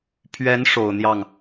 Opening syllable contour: rising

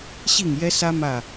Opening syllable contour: falling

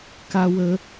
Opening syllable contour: high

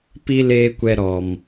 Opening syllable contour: high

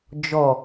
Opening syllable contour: low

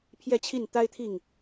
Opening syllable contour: falling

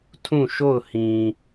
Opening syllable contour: falling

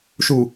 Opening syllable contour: low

